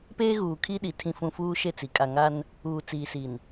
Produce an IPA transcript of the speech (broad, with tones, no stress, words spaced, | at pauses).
peː˦ɣuː˨ kʰi˦ɗi˨ tʰĩ˨fũ˨ fuː˦ʃe˦˨t͡si˨ kʼa˨ŋa˦n | uː˨t͡siː˨si˨n